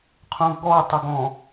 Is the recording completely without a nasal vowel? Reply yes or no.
no